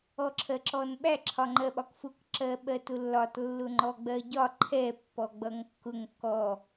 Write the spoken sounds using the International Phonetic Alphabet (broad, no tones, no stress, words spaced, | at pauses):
ɔǁʰɜǁɔnɓæ ǁʰɒŋ͡ǃɜɓɒkfʊk ǁɜɓɜtʊlːɒt lːʊŋ͡ǃɔɡ͡bɜɟɒ ǃʰɛ pːɔɡ͡bʌŋkːʊŋ kɔ